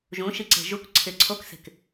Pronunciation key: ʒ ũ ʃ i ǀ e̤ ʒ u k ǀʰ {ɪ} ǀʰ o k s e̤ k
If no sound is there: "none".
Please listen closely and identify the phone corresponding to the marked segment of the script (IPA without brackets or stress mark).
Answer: ɪ